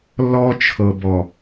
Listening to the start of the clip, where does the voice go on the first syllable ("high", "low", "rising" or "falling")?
high